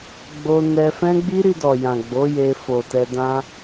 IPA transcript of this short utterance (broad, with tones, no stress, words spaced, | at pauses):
ɡ͡bo˧nɛ˧fɛ̃˦ ɡ͡bi˦ɾi˧dɔ˨ jã˨ɡ͡bo˨˦je˧ fo˨tɛ˧ dã˧